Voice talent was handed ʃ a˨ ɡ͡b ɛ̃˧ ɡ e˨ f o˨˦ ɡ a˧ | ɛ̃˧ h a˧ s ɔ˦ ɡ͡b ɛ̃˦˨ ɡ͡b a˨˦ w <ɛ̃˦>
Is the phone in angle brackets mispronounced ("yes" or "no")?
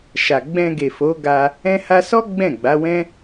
no